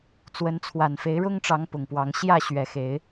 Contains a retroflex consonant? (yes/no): yes